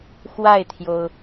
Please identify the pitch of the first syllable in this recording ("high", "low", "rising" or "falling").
falling